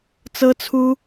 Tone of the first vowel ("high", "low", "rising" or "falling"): high